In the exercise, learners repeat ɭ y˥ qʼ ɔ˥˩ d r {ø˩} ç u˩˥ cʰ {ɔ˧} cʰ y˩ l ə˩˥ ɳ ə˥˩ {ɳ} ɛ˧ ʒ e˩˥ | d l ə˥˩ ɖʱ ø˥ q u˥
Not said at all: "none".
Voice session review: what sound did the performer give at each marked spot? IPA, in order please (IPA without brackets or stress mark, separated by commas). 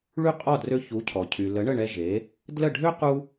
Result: ø˧, ɔ˩, ɳ